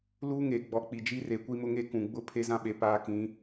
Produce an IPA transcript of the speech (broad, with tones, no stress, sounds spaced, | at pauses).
l uː˦ ŋ eː˨ ɡ͡b ɔ˨ k͡p i˨ d͡ʒ i˦ r e˨ kʷ i˦ m ʊ˦ ŋ e˦ k ũ˨ ɡ͡b ʊ˦ pʰ e˦ z ã˦ ɓ e˨ p aː˦ k ĩ˨˦